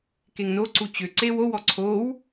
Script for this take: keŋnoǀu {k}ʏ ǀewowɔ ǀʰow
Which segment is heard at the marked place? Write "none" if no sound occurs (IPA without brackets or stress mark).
t͡ɕ